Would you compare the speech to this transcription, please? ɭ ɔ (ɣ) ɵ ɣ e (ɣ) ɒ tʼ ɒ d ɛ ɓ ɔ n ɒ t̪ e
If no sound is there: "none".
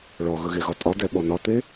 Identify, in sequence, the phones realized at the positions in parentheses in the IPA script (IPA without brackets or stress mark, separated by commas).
ɣ, ɣ